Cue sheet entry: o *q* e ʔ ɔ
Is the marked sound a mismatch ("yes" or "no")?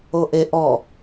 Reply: yes